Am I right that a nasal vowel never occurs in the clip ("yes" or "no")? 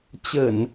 yes